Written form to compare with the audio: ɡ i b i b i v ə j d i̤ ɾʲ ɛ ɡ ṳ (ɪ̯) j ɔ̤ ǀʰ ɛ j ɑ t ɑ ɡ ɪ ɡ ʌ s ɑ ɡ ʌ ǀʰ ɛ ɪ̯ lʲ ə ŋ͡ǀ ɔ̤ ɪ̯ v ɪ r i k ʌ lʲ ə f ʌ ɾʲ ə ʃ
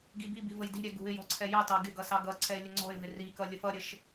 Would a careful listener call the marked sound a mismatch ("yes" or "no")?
no